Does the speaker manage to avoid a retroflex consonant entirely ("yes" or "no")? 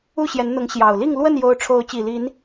no